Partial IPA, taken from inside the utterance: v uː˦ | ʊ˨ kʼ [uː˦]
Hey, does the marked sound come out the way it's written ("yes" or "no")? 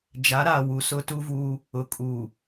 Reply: no